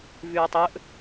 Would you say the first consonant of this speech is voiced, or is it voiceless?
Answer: voiced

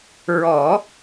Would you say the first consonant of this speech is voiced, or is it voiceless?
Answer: voiced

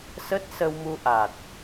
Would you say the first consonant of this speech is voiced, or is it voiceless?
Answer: voiceless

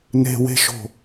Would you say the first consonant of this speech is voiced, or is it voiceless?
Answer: voiced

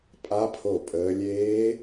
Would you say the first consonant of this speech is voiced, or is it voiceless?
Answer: voiceless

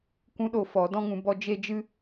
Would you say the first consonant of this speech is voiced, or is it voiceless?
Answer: voiceless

